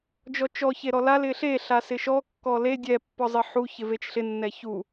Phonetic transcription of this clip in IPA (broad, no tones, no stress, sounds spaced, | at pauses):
d͡ʒ ɔ t͡ʃ ɔ ç e ɾ ɔ l a l ɪ ɬ e ɬ a s ɪ ʃ ɔ kː ɔ l e dʲ ɛ pː ɔ zˤ ɪ ħ u ç ɪ v e t͡ʃ ɬ ɪ nː ɛ ç u